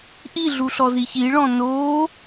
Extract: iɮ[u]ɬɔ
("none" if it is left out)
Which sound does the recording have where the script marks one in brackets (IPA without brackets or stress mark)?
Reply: u